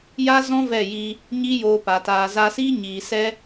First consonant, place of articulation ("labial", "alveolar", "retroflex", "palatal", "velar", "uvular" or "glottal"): palatal